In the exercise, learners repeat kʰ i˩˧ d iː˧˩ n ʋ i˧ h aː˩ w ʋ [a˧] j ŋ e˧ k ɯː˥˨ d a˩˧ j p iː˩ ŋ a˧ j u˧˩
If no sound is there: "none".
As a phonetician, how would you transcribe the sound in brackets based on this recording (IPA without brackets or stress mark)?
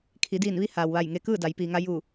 a˧˩